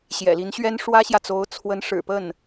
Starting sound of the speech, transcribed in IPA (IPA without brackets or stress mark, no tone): ɕ